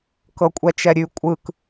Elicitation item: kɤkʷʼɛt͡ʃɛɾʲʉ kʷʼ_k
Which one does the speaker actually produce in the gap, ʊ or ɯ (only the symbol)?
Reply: ɯ